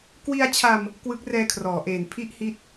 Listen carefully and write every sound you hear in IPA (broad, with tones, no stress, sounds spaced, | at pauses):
k w i˧ a̯ t͡ɕʰ a˧ m | k w ɯ˦˥ k̚ r ɛː˧ kʰ r ɔː˩˦ ʔ eː˨˩ n pʰ i˥˩ ʔ h i˥˩ t̚